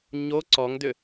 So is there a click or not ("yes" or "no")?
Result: yes